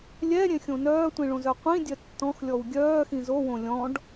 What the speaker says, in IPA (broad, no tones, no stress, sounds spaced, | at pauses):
lʲ ɛ ɾʲ ẽ xʲ õ n œː tʷ ĩ ɭ õ z œ qʷ ĩ dʲ œ tː ɔ̃ x lʲ ɔ w ɡʲ œː x ĩ z o w õ lʲ ɔ̃ ɖ